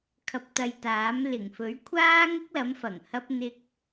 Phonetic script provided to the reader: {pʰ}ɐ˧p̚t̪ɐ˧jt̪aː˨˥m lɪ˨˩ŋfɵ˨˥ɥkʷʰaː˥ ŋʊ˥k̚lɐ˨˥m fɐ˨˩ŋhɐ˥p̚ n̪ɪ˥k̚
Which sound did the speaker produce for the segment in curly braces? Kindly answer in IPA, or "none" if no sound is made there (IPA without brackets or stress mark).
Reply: kʰ